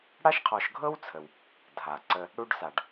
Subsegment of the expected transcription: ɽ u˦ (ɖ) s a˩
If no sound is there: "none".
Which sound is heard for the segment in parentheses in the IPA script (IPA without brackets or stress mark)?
ɖ